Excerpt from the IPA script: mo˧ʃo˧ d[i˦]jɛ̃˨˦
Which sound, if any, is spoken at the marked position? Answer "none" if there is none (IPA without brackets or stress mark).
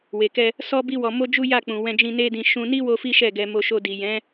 i˨